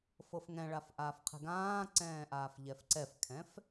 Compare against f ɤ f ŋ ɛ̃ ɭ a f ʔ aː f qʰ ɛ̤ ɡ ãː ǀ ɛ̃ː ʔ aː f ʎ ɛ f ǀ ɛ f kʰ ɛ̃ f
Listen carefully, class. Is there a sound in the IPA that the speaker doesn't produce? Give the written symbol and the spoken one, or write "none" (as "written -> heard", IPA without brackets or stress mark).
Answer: none